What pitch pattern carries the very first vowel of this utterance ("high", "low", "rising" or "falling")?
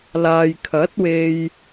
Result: low